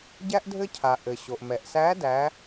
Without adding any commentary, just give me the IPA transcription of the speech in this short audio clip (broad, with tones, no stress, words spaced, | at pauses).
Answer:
ɟæ˥ʔ dʱɘ˥cʰa˩ ʔɘ˩ɕo˩ʔ mɛ˩ʔsæ˧˥ dæ˩˧